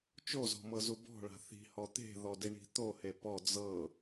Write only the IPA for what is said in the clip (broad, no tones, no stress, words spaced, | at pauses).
t͡ʃozɔ̤mɤzu bɔ̤ɭa̤ θi̤hɔ t̪e̤ðɔdiɳi̤ t̪ohe pɔ d͡zɤ